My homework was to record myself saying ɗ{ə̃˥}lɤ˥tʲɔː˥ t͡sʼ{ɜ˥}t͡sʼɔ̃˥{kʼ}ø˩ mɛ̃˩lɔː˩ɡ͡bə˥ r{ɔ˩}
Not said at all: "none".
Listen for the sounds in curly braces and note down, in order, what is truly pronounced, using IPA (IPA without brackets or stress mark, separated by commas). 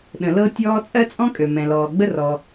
ə̃˩, ɜ˥, kʼ, ɔ˩